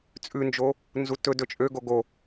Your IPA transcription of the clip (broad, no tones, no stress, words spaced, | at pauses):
t͡sʼʉnd͡ʒo | nzutɵ dɵt͡ʃʼø ɡoɡo